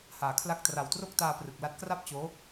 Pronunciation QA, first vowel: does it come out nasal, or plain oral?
oral